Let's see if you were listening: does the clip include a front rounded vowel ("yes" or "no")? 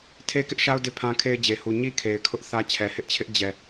no